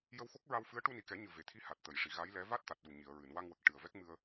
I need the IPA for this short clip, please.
j ə˧ w x o˦˥ k̚ ɹ a˧ w f ɨ˧˥ ə̯ ʈ u˧ n i˨˩ k ɛ˨˩˦ ɲ ɨ˨˩ v e˨˩ t̪ʰ i˧ h a˨˩ t̚ t̪ ə˨˩˨ j ʂ i˨˩˨ ɣ a˧˥ j l ɛ˧˥ v a˦˥ t̚ t̪ a˨˩ t̚ ɗ u˨˩ ɲ i˨˩˨ ə̯ ɹ ɨ˨˩˨ n w a˧ ŋ w ə˨˩ k̚ ʈ ɨ˨˩ ə̯ v ɛ˦˥ k̚ m ɨ˧ ə̯

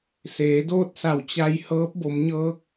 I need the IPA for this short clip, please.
s eː˩˧ d oː˥˨ t̚ s a˧˩ w t͡ɕ a˧ j h ɤː˧˥ p̚ b o˩˧ m ɲ ɤː˧˥ k̚

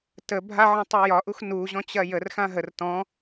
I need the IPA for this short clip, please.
t ə bʱ a ʕ ɔ̃ tˤ ø j ɒ ʔ u x n u ʑ ɔ̃ t͡ɕ ɐ j ə r x ã ɦ ə r t ɔ̃

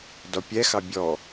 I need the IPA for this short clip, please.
d ɔ pʲ ɛ x ɑ bʲ ɔ

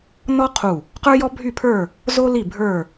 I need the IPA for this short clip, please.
n ɔ˥ qʰ u˧˩ | q ə˞˥ j ɔ˥ bʱ y˥˨ pʰ ə˞˥˨ | z o˥ l i˥˨ bʱ ə˞˥˨

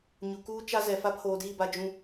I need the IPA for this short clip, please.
ɲ u˨ k uː˦ t͡ʃ a˦ z ɛ˨ f a˦ pʰ oː˨ d iː˦˨ b a˨ d͡ʒ ũ˨

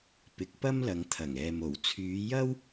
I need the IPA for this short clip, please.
p ɪ˨˥ k̚ p ɐ˥ m l ɐ˨˧ ŋ t̪ʰ ɐ˨˩ ŋ ɛː˨ m o˨˩ w t͡sʰ yː˨˧ j ɐ˥ w

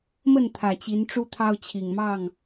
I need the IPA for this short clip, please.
m ə˥˨ n t̪ʰ ä˨˩ t͡ɕ i˨˦ n ʈ͡ʂ u˦ t̪ʰ ɑ˦ ʊ̯ t͡ɕʰ i˨˩ ŋ m ɑ˥˨ ŋ

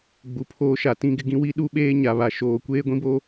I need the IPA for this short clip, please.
ɡ͡b u˨ pʰ oː˦ ʃ a˨ t ĩ˦ ɡ ɪ˦ ɡ ĩ˦ w i˦ ɗ u˦ ɓ eː˦ ɲ a˨ β a˨ ʃ oː˨ kʷ eː˦ ɡʷ ĩ˦ b o˦

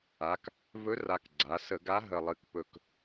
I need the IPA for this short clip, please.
a˩˧ k | v ɵ˧˥ r a˨˩ k ɡ͡ǀ a˩˧ s ə˧˩˧ ɡ a˧˥ ɦ ə˨˩ lˠ ɨ˨˩ k p ɵ˨˩ k

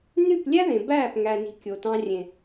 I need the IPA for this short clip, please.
n y˦˨ p lʲ æ˦ ð ẽ˨ b æː˦˨ p ŋ æ˨ n i̤˨ kʲ o˨ t ɑ̃˧ rʲ ẽ˨

